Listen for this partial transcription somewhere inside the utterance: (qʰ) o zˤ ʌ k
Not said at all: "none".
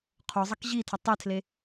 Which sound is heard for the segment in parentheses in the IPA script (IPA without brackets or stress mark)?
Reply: qʰ